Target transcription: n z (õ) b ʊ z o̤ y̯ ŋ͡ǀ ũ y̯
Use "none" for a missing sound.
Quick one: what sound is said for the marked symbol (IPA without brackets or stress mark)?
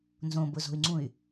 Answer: õ